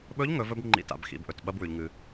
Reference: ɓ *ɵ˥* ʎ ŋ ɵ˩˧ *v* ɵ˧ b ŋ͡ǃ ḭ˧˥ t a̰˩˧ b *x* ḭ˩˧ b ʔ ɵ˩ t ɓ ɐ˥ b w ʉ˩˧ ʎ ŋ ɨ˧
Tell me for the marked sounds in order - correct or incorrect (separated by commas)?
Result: incorrect, correct, correct